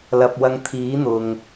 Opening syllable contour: low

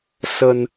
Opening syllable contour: low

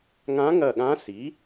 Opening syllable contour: rising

